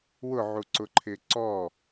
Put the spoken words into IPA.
wʊʕuǀʊǃʰɪː ǀɔ

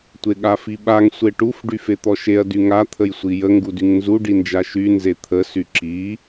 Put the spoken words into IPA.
tʷeɠafiɓaŋ sʷeʈuf ɖyfet̪ɔʃeɐ̯ dyŋa t̪ʰəjsʷijə ŋɡudyŋnzu ɖind͡ʒaʃy nzet̪ʰə syǁi

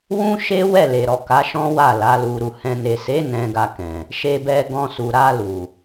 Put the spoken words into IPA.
wũ˦ʃe˦ wɛ˦˨le˨ɾɔ˨ ka˨˦ʃɔ̃˦wa˦˨ la˨˦lu˧ɾu˧ hɛ̃˨ne˨se˨˦ nɛ̃˧ɡa˧kɛ̃˨ | ʃe˧bɛ˧ɡɔ̃˧ su˨ɾa˧lu˨

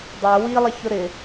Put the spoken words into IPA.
dˤɛ wilˠɪçʊ ɾɪ

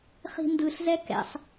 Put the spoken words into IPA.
χi̤ndɯɬzɛ kɛ̰sˤ

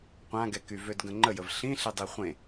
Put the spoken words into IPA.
qʷãɡɛky vødɡə̃ŋ͡ǃəjəv ɬĩɬedˤi χʷẽ

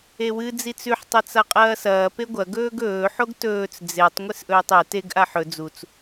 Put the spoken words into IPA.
ewɨ d͡zit͡sʉħ tˤɐt͡saqʼɐːsɐː peɡʷɐ ɡɵːɡɵː ħoɡtɵːt͡s d͡zetˤ ŋʷesʔɵːtˤe teɡ ʔaħɵ d͡zut͡s

